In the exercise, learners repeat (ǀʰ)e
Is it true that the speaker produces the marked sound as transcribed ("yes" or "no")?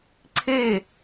yes